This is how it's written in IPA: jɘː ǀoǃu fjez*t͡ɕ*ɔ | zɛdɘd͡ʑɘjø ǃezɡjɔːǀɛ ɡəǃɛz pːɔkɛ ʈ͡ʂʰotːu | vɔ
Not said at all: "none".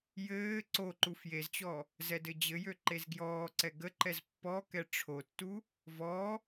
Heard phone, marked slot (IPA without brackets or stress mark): t͡ɕ